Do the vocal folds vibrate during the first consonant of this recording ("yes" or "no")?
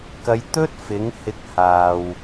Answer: no